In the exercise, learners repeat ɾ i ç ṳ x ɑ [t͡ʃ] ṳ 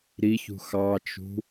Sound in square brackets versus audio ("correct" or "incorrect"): correct